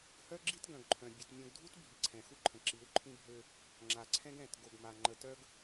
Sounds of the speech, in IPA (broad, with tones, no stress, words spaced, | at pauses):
hœ˦ɡ͡ǁi˦t ɡœ̃˨ɡǃʰœ̃˨ bʲe˨t mʲõ˨ɡdʱu˦t bʱi˨ǀʰɛ̃˨xu˦ǃʰə̃˨ ǁi˨˦wǃʰĩ˦bʱø˦ | ŋ͡ǁa˨ǀʰɛ̃˦ɡ ɛ̃˦˨t ɡo˨ɡma˨ ŋ͡ǃə˨tœ˦ɡ